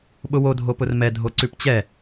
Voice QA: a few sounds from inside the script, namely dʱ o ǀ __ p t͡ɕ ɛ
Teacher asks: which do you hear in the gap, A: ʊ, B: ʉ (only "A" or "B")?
B